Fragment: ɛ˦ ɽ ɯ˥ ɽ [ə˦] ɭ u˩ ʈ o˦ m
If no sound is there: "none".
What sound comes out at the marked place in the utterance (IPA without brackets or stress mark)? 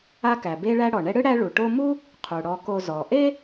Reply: æ˦